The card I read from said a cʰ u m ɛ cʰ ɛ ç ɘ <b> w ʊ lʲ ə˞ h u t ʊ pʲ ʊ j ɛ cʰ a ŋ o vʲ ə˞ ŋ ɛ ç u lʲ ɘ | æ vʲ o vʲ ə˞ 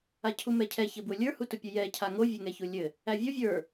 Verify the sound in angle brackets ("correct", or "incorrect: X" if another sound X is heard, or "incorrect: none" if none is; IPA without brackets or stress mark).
correct